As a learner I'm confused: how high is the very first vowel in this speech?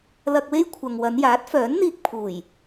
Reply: low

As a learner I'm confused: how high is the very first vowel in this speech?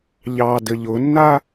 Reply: low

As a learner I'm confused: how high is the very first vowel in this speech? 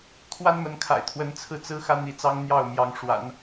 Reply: low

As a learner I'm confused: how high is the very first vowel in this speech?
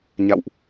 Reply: low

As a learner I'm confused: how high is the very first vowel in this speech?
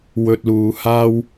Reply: mid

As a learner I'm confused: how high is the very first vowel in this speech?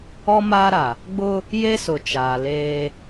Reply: mid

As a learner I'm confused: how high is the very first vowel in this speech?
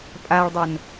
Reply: low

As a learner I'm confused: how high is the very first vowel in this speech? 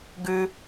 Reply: high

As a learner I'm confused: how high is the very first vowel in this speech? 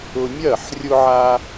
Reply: high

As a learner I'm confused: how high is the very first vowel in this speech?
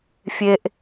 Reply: mid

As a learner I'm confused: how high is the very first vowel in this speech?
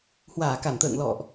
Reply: low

